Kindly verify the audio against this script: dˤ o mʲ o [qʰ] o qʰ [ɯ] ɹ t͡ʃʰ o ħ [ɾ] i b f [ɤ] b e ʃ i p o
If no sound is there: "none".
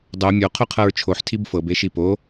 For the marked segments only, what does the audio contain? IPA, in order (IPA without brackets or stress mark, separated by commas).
qʰ, ɤ, tʰ, ɤ